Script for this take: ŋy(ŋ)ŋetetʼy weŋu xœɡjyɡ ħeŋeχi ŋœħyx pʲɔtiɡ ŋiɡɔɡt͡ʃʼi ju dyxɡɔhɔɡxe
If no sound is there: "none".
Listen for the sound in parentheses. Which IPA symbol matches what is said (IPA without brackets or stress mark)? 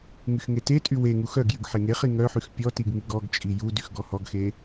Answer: x